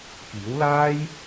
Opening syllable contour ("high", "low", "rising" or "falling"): rising